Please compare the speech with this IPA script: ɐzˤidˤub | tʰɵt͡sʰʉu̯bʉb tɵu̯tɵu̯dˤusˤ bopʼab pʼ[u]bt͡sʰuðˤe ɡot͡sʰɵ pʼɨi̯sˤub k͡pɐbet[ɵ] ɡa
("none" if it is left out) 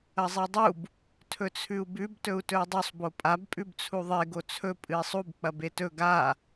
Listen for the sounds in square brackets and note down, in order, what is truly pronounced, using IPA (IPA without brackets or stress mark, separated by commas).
ʉ, ɵ